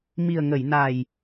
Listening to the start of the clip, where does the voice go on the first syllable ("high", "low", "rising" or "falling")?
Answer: low